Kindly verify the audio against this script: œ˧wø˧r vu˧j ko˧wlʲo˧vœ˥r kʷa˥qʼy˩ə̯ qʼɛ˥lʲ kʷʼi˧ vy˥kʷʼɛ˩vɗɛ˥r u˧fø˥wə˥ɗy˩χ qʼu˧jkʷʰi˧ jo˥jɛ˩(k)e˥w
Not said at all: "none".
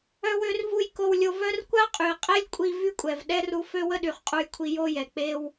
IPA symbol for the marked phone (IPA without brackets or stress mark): k͡p